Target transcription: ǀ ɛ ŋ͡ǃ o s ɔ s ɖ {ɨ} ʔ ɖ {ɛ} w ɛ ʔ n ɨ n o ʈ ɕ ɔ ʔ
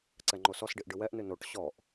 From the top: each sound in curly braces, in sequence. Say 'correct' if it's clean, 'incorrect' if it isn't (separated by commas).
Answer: incorrect, incorrect